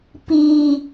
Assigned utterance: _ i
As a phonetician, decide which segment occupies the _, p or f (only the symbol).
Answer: p